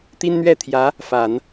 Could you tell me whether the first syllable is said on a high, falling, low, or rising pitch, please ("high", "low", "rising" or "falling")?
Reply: high